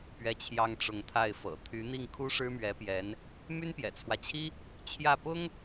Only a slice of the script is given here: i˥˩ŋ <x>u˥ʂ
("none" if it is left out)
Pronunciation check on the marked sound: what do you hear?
kʰ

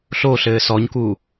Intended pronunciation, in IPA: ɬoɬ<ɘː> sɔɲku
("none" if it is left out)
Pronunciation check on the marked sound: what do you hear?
ɘː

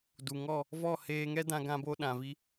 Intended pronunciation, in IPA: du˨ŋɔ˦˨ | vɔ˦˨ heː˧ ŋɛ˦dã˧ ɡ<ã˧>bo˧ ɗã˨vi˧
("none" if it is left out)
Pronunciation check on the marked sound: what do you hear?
ã˧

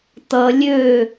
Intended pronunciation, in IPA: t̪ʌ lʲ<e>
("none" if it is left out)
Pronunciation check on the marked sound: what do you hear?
ø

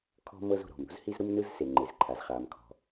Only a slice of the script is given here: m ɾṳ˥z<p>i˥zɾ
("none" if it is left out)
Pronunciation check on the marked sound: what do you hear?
h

